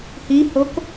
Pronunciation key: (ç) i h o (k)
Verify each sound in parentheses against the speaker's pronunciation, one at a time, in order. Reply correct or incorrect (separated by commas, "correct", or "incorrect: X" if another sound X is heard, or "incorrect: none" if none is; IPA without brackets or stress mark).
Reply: incorrect: h, correct